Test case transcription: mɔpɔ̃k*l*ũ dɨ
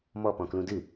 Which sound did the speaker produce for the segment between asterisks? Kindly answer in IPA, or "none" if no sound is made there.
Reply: l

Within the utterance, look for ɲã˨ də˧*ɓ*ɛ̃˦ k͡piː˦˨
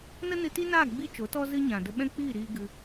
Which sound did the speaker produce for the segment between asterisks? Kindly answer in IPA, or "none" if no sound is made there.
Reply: ɓ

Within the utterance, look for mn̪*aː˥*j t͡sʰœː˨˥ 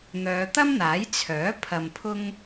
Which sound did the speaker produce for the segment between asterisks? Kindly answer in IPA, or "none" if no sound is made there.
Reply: aː˨˥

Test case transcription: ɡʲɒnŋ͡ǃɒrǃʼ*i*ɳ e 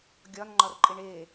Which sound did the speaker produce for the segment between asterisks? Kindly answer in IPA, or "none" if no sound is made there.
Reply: i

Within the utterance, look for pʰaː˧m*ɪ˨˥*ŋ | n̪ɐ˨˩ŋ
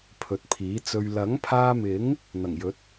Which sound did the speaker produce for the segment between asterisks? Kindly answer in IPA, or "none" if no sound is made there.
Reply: ɪ˨˥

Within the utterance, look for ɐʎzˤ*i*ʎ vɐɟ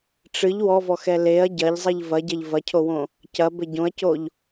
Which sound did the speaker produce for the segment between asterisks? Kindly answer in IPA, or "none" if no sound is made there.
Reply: i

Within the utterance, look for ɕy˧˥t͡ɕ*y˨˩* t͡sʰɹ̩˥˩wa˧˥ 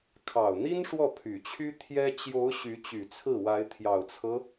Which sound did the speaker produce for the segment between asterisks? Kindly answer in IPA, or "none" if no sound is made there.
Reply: y˨˩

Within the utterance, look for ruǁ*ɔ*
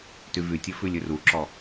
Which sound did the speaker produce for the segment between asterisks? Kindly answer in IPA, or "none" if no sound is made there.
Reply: ɔ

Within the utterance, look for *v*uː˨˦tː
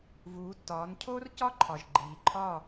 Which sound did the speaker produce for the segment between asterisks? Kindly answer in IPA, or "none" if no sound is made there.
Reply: v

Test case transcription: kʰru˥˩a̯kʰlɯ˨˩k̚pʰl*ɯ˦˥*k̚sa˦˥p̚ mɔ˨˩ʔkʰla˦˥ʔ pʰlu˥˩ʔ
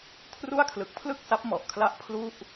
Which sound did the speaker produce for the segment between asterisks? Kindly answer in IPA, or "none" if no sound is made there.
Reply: ɯ˥˩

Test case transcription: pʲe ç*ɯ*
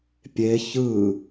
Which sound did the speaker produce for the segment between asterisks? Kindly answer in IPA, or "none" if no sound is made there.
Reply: ɯ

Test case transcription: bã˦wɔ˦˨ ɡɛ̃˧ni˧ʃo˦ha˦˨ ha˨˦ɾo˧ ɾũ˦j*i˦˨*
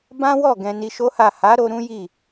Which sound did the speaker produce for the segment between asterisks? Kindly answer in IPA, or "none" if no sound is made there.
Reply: i˦˨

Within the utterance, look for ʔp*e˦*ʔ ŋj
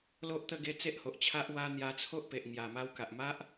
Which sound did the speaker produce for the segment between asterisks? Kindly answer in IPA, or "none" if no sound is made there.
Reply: e˨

